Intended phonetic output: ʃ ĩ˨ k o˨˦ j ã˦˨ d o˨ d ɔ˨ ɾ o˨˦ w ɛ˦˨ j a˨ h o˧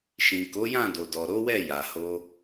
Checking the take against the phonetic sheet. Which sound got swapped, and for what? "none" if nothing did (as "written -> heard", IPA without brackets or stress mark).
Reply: none